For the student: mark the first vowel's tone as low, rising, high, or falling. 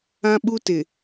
high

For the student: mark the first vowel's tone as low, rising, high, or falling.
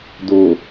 low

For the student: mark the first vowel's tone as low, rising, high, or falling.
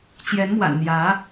rising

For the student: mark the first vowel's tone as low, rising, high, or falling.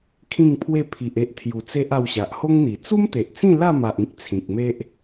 falling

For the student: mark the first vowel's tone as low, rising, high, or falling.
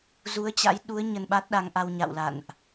rising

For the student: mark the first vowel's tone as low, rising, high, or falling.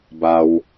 low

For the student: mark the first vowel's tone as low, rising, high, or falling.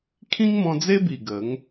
high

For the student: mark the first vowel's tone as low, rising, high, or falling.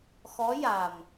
rising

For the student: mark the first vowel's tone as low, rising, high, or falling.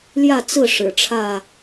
falling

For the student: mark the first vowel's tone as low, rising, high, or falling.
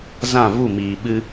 falling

